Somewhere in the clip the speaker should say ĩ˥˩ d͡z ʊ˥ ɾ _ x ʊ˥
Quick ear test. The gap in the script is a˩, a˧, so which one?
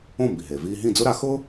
a˧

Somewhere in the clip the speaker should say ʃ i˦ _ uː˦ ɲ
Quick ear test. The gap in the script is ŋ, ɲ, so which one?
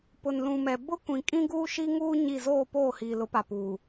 ŋ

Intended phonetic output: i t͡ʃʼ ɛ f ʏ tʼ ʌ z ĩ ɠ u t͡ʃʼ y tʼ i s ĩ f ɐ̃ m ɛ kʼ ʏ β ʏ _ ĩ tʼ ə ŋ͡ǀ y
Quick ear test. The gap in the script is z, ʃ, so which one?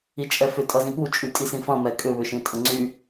ʃ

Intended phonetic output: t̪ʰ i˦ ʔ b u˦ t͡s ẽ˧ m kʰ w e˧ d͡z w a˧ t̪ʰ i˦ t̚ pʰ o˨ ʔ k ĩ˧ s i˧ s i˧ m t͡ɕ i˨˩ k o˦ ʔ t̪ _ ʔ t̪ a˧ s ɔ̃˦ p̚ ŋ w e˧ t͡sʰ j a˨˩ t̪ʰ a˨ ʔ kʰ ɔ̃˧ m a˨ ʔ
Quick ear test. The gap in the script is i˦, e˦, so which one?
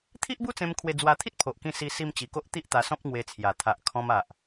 i˦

